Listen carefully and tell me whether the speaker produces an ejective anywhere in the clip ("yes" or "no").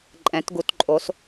yes